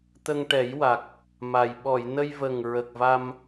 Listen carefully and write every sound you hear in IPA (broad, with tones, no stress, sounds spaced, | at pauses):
t̪ ə˧ ŋ ʈ ɛ˨˩˦ j w a˨˩ k̚ | m a˨˩ j ɓ ɔ˨˩˨ j n ə˧ j v ə˨˩ ŋ ɹ ə˨˩ k̚ v a˧ m